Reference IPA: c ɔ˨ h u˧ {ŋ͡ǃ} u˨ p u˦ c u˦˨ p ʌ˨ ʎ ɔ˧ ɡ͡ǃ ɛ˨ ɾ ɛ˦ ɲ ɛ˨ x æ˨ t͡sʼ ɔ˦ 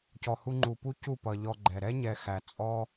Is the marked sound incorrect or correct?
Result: correct